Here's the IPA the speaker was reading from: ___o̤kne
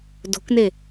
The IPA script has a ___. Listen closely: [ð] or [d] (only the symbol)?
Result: d